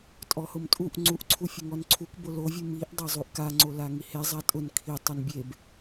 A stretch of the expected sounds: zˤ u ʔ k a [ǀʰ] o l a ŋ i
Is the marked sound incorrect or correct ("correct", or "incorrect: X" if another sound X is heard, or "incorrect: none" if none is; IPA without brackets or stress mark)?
incorrect: ŋ͡ǀ